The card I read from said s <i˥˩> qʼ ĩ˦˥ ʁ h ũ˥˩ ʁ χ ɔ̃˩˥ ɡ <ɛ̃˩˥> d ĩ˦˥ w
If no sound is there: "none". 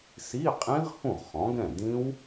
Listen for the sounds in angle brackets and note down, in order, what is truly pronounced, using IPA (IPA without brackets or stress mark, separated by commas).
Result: i˧˥˧, ɛ̃˥˩